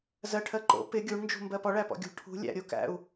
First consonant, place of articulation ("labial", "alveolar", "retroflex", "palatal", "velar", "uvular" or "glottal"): alveolar